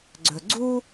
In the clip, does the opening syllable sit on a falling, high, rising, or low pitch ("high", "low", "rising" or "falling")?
low